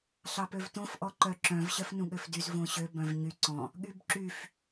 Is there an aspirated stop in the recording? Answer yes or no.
no